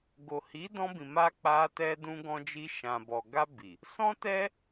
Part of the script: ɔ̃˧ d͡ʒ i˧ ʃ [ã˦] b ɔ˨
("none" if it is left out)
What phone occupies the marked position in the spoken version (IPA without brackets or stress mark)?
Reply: ã˨